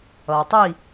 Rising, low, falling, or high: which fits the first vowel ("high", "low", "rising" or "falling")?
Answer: low